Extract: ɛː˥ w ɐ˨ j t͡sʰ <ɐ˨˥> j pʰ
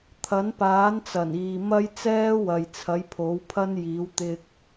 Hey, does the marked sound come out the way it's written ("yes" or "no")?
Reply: yes